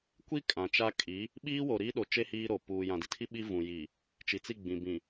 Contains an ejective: yes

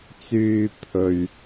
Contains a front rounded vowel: yes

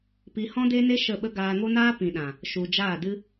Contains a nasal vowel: yes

